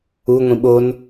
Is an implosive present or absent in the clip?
present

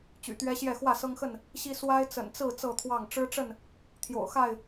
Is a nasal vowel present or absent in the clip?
absent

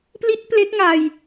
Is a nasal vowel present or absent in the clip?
absent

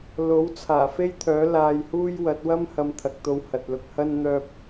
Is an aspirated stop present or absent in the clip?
present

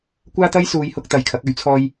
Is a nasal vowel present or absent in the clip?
absent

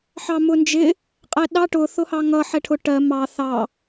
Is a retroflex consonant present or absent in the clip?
present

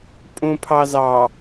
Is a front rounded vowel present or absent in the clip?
absent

